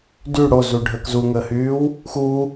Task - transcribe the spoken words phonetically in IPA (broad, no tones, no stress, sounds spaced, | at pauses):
d y ɽ o z u ɖʱ əː k z u ŋ əː h yː w | x uː